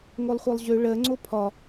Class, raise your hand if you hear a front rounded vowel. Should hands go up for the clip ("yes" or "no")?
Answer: yes